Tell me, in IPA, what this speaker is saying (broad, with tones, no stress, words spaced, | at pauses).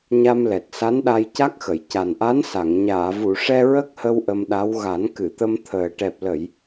ɲa˧mlɛ˨˩t̚ sa˧˥nɗa˧j ca˦˥k̚xə˨˩˨j ca˨˩nʔa˧˥n sa˨˩˨ŋ ɲaː˨˩˨vu˨˩˨ʂɛ˧ ɹə˦˥k̚hə˧w ʔə˧mɗa˧˥w ɣa˨˩˦nkɨ˨˩˨t̪ə˧m t̪ʰəː˨˩ʈɛ˨˩p̚ lə˨˩˨j